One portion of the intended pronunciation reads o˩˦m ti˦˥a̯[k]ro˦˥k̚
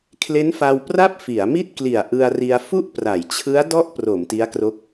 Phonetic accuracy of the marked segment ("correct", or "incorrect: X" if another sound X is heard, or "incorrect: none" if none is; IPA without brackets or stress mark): correct